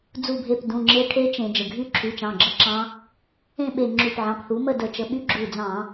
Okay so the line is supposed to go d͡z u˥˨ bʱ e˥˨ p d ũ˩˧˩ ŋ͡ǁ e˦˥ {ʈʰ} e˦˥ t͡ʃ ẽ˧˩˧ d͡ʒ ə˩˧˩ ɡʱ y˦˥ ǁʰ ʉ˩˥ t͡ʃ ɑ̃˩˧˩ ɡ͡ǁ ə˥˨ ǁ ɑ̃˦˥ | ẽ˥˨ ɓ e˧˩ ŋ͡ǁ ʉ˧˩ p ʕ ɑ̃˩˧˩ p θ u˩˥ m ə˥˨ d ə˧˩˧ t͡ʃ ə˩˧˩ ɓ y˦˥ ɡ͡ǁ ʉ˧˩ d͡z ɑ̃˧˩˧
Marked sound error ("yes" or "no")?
no